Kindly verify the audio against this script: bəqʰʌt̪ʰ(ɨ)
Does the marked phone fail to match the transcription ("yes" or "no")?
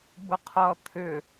yes